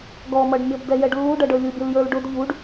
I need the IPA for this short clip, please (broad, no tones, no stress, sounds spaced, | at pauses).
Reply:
ɡ ɔ m ʌ ɖ mʲ ɔ b d ɛ j ɛ ɖ lː u ɖ ʌ ɖ ə˞ lʲ u bʲ ʌ l j ə˞ l ɖ ʊ d ʎ u ɖ